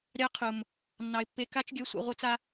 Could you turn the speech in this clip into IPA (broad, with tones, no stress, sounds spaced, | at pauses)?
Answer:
ɾʲ ɑ˧ qʰ ʊ˨ m | nː ɑ˨ ɪ̯ pː e˧ k a˦ t͡ʃ ɡʲ œ˧ sʷ ɛ̰˧ ʁʷ œ˦ t͡s a˦